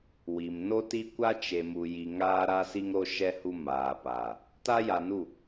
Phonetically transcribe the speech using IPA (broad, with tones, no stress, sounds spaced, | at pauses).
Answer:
w i˨ m n o˦ t i˦ kʷ a˦ t͡ʃ e˨ m u˨ j i˨ ŋ aː˦ ɾ a˦ s i˦ ŋ ɾ o˦ ʃ ɛ˦ h u˦ m aː˨ p aː˨ | t a˦ j a˨ n u˦˨